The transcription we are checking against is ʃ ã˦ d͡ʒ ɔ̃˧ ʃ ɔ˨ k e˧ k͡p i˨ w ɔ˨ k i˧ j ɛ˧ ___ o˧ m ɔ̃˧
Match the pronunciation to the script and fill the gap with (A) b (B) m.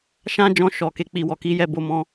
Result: A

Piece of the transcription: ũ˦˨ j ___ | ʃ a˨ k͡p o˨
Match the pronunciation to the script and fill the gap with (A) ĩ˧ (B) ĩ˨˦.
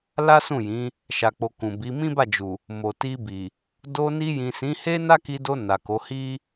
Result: B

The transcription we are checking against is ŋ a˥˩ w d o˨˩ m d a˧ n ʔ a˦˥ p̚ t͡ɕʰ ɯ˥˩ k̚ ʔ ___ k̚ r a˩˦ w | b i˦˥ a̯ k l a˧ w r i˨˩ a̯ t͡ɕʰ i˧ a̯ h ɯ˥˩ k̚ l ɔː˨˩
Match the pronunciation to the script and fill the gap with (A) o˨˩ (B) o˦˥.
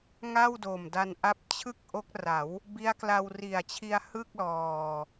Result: B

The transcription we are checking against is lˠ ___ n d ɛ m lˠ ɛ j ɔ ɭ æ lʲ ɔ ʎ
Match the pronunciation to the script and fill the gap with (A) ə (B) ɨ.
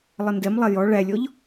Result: A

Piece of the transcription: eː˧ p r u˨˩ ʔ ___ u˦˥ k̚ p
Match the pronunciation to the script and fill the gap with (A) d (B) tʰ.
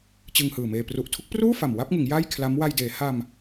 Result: B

